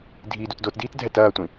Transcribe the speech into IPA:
dʱ iː d u t d o t d iː t dʱ ɛ t ɐː tʷ ĩ

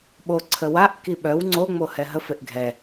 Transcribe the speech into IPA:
ɓ o ǀʰ ə w a ʔ k i ɓ œ w ŋ͡ǀ o ŋ͡m o h ɛ ɦ ə f e ʔ ɡʱ ɛ

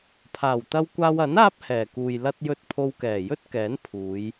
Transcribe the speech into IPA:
pʰ aː˨˩ w t̪ ɐ˧ w kʷ aː˧ w ɐ˨˥ n aː˥ p̚ h ɛː˨˩ k uː˨ j l ɐ˧ t̚ j ɵ˧ t̚ pʰ o˧ w k ɛː˨˩ j ɵ˥ t̚ k ɛː˨˥ n pʰ uː˨˧ j

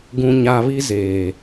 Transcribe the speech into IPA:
ɡ ũ˨ ɲ a˨ β i˦ z eː˨

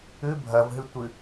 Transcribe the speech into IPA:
ʉ bʱ ɐ v ɦ ɨ tʷ ɨ

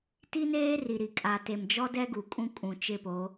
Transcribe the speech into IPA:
t i˦ n eː˦ r i˨ ɾ i˨ kʼ a˨ t e˨ m d͡ʒ ɔ˦ d ɛ˦ ɡ u˨ kʼ ũ˦ kʼ ũ˨ t͡ʃ ɪ˦˨ p o˨˦

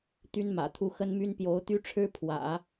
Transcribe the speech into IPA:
t̪ y˥ n m ä̰˨˩ t̪ʰ u˥˩ x ə˥ n m y˥ n p j o˧˥ ʊ̯ t̪ y˥ ʈ͡ʂʰ ɻ̩˥ pʰ w ä̰˨˩˦

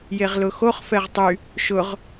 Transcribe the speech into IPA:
j e ʁ l ʊ x o χ f ɛ ʁ tˤ y | ʃ ʊ ʁ

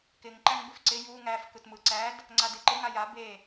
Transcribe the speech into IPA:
k ɪ ŋ ǃ æ ŋ b ɪ f ǀ ɪ j u ŋ æ f k ɯ t m ɯ ǀ æ d | ŋ͡ǀ a d e ǃ ɪ ŋ a j a b e

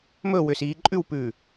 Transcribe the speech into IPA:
m ɵ w ʏː s iː ǃʼ ʉ w p ʉː

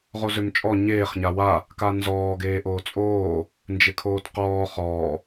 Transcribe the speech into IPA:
ʁ o z ø m t͡ʃʼ ɔ ɲ eː χ ɲ a w a | k a n z ɔː ɡ eː ʔ oː t͡sʼ oː | n d͡ʒ ɪ kʰ oː t q ɔː χ ɔː

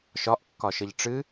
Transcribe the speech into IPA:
ʃ ɒ ʔ kː ɒ ʃ ɘ ʎ ʈ͡ʂ ɨ

